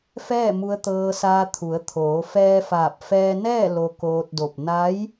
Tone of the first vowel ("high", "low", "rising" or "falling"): falling